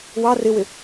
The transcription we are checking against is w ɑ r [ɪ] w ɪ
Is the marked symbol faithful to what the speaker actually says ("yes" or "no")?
yes